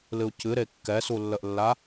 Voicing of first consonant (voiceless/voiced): voiced